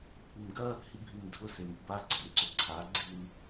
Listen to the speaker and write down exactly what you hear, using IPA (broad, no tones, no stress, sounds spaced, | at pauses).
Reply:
kʷ i m ɡ ɐ | h i bʱ i m dʱ ʊ s e m i b a ɡ͡ǀ ɐ m ǀ ʊ ǀʰ a ɡ͡ǀ i l